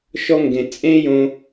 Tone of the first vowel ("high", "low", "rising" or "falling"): high